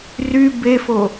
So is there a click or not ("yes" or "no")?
no